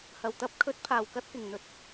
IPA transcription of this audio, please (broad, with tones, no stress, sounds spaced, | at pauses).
h ɐ˨˩ w t̪ ɐ˧ p̚ kʰ ɵ˨˥ t̚ pʰ aː˨˩ w k ɐ˧ t̚ k ɪ˨˩ ŋ n̪ ɵ˨˥ t̚